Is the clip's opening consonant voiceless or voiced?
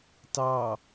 voiceless